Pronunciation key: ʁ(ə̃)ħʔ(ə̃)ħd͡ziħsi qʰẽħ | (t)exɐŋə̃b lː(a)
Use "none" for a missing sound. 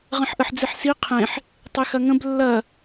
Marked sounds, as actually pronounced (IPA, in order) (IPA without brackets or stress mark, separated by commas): ə̃, ə, tˤ, ɐ